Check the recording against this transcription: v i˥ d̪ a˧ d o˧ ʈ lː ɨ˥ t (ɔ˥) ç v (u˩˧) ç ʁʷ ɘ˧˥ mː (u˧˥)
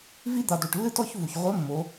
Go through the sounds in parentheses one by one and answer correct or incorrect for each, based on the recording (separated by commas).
correct, incorrect, incorrect